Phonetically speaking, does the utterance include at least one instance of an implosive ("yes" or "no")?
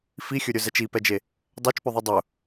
no